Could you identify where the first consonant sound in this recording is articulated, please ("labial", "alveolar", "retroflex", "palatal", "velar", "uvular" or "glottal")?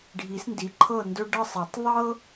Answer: retroflex